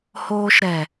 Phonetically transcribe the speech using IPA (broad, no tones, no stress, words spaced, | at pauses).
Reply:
hoːʃɾɛ